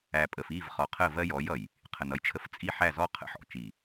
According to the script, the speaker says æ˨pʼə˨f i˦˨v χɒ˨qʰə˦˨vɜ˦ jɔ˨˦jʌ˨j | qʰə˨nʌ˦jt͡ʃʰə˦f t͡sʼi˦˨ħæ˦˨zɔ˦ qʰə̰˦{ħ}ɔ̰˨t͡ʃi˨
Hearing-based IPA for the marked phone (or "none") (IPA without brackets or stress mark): ħ